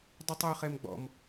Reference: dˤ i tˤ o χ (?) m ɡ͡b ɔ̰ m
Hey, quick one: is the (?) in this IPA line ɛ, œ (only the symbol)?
ɛ